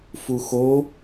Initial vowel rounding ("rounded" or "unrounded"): rounded